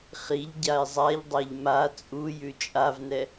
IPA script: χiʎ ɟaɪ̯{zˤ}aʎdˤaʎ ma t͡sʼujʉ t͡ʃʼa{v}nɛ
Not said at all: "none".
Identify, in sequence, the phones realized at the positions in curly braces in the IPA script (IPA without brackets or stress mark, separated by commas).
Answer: zˤ, v